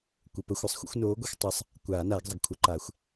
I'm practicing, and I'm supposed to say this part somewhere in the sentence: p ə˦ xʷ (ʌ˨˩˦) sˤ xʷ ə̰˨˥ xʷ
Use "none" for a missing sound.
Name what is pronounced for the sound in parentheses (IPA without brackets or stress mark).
ʌ˨˩˦